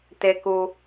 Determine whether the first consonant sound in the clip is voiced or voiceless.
voiceless